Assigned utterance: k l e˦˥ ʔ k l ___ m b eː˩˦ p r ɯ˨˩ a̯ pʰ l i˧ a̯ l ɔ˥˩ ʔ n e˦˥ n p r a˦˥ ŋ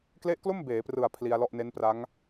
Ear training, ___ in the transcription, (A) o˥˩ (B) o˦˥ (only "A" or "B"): A